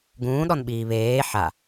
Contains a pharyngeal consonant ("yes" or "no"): yes